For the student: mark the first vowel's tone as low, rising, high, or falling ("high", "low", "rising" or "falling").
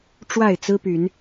falling